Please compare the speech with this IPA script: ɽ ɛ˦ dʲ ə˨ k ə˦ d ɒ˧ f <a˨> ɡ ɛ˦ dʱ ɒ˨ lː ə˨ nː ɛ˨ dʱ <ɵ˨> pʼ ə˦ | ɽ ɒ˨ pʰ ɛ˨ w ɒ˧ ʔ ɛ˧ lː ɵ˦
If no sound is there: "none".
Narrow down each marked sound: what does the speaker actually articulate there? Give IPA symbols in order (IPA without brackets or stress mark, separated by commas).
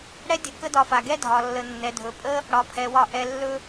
a˨, ɵ˨